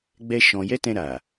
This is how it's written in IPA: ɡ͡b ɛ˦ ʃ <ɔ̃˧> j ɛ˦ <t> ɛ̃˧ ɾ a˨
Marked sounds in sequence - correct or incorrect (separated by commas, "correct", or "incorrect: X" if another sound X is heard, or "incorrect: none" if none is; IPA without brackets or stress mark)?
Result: correct, correct